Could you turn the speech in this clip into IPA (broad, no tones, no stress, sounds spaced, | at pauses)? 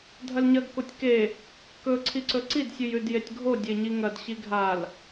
dʱ ɐ l ɲ ɐ ɡ k o tʲ k e | k ɵ ǀʰ i ǀ ɵ ǀ i d sʲ ʉ j ʉ d j e tʲ ɡʱ o dʲ e ɲ i ŋ ɐ d ɕ i ɡʱ a l